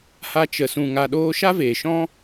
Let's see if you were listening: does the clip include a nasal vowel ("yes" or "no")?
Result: yes